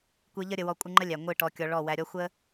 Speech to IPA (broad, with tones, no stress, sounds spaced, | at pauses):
kʷ ɨ˧ ʎ ə˦ ɾʲ ə˧ w ɔ˦ kʷʼ ɨ˧ ŋ͡ǃ ə˦ lʲ æ˨ ŋʷ ɨ˦˨ ʈ ɔ˧ kʲ ɔ˧ ɭ ɔ˦˨ w æ˧ ɾʲ ɔ˦ xʷ ə˦